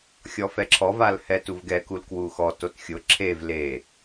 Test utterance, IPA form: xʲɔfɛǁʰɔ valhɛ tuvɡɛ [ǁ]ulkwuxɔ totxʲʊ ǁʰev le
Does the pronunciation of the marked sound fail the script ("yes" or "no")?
yes